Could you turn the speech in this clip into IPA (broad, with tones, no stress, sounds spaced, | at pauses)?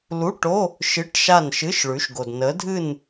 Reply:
l u˧˥˧ ʈ o˧˥˧ | ʃ ɨ˧˥˧ ʈ ʃ a˥˨ n ʃ ɨ˧˥˧ ʃ ɭ ʉ˨˥ ʃ ɡ o˨ d n ə˨˥ dʱ ɨ˥˨ n